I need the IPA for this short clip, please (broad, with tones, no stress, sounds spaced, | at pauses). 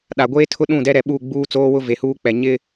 ɗ a˨ ɡʷ eː˦ tʰ ʊ˦ ɗ ũ˦˨ d ɛ˦ ɾ ɛ˨ ɓ u˦˨ ɡ͡b uː˦ t͡s oː˦ w ʊ˦ v e˨ h uː˦ k͡p ɛ˨ ɲ ɪ˦